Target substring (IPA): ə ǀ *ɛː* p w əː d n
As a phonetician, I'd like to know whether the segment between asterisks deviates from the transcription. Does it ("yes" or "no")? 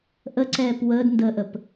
no